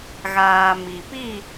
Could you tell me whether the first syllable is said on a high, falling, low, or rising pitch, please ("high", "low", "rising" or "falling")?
low